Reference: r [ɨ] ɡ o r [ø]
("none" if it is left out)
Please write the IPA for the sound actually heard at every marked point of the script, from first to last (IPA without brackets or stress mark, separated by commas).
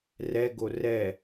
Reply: ɛ, ɛ